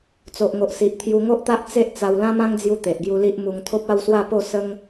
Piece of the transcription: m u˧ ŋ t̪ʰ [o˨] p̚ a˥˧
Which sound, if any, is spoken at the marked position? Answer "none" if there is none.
o˦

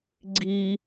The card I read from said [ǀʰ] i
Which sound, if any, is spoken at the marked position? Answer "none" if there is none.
ɡ͡ǀ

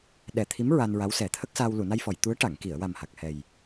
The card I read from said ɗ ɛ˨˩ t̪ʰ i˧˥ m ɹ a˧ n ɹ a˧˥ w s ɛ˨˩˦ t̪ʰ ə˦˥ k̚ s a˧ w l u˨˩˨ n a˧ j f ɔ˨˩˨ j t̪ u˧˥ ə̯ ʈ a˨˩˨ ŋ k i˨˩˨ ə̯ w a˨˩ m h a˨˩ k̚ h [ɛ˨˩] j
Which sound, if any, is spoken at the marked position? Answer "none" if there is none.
ɛ˨˩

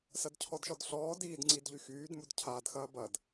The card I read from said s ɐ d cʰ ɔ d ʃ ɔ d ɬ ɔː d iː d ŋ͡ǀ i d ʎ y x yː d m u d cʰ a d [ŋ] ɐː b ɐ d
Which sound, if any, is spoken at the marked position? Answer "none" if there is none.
x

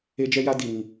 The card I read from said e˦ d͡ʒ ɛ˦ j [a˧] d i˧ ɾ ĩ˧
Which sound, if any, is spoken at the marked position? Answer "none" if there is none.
a˦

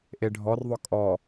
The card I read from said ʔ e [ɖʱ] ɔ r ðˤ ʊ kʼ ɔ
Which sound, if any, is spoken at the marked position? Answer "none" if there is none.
ɖʱ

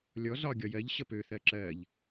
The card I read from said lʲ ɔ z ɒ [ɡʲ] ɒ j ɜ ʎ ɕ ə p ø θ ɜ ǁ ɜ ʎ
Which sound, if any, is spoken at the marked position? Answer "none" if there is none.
ɡʲ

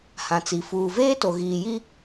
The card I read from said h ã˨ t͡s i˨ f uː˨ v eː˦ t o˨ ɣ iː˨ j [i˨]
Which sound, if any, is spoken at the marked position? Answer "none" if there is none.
i˦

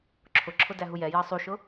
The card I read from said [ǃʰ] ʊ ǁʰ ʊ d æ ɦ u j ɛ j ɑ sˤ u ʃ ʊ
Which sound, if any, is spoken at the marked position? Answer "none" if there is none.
ǁʰ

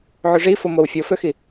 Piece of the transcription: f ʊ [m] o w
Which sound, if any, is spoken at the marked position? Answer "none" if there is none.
m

